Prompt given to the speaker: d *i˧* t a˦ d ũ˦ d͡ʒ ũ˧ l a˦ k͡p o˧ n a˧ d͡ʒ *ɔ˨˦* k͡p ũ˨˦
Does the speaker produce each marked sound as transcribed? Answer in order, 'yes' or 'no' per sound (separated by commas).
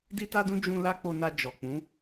no, no